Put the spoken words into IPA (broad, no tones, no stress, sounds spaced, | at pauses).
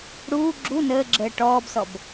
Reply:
ɽ uː ɡ͡ǁ u n əː ɡ͡ǁ əː ʈ ɔː b s ɔ b